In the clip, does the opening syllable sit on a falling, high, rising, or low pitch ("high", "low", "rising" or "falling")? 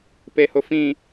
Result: low